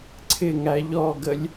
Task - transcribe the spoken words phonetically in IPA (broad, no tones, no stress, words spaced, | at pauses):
ǀʰɪ ŋæʎɔɡəlʲ